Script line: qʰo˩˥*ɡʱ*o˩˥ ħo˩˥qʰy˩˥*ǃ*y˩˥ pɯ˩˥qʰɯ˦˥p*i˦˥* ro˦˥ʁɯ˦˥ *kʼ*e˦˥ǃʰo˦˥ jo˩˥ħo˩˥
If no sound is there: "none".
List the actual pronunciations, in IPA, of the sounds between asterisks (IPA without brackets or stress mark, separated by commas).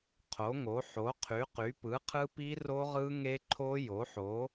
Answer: ŋ, q, i˦˥, ŋ